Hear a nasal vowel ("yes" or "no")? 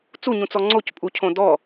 yes